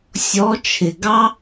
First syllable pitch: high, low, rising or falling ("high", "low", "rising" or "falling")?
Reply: rising